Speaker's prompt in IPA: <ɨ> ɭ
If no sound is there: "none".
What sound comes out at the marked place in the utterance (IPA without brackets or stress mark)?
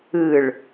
ɨ